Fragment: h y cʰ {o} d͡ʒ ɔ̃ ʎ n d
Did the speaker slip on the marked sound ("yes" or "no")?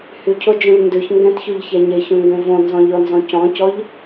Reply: no